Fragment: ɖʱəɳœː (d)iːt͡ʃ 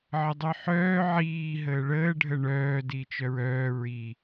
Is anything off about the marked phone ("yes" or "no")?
no